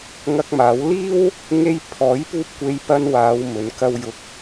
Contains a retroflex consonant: no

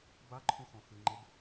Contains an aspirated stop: yes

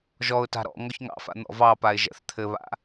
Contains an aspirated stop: yes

